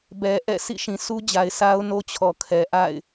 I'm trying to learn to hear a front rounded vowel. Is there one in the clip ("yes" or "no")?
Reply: no